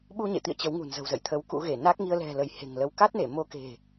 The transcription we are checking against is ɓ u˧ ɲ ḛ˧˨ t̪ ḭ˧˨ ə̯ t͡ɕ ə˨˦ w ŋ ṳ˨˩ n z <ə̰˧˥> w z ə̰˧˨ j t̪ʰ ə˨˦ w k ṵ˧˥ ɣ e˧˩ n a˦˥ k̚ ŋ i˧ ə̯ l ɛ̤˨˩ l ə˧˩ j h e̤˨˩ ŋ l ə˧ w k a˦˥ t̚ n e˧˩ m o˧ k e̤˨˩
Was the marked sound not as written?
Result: yes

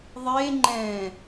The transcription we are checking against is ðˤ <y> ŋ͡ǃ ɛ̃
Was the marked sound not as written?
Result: yes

